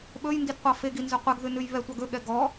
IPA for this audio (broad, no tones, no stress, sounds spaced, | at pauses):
ɓ ɵ j n d i d qʷ ɑ f e ɡ i n z ø qʷ ɛ ɡ ð ʉ n ʉ j β ɛ tʷ ɑ ɡ ɵ ɠ ɛ ɡ ɔ